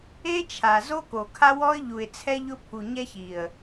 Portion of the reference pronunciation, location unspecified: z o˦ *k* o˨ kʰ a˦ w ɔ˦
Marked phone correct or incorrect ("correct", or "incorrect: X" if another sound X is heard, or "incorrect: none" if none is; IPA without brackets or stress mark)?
correct